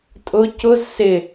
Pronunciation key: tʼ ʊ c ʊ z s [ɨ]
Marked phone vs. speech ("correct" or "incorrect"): incorrect